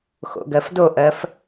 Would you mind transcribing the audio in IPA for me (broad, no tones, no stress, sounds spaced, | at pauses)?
x o̰ ɡ ɜ f d o ʔ ɜ f